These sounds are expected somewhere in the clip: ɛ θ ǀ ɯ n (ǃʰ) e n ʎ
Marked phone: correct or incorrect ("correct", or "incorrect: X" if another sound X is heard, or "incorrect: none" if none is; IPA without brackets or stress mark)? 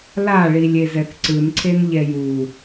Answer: incorrect: ǀʰ